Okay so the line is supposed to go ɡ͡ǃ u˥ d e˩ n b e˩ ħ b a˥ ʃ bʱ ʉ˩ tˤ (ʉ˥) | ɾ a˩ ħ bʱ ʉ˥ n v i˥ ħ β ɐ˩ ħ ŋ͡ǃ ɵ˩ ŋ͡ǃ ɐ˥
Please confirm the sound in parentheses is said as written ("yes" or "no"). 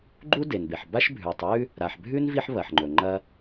yes